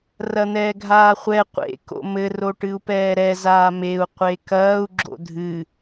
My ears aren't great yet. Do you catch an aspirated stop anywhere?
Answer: no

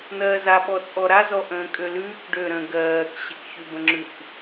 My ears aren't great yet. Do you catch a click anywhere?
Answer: yes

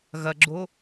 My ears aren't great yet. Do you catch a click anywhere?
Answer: yes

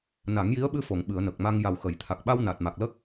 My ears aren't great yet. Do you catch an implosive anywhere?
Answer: yes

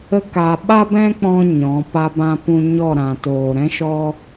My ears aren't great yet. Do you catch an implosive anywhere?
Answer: yes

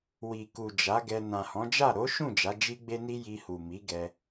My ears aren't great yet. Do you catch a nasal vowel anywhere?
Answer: yes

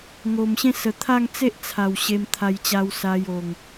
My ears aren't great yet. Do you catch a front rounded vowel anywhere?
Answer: no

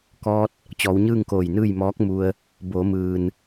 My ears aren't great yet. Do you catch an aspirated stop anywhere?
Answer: no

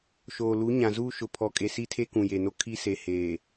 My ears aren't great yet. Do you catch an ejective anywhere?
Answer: yes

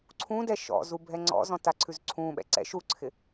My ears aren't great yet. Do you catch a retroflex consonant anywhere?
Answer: no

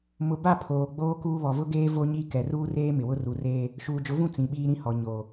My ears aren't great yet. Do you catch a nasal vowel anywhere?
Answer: yes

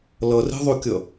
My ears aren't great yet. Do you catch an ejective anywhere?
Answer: no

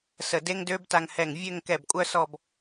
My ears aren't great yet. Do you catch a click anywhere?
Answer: no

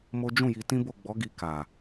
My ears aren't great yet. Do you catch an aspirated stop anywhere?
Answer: no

